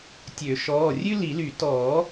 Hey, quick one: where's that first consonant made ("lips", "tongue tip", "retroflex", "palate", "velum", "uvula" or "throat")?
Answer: tongue tip